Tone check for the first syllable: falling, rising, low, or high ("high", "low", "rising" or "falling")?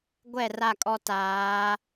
falling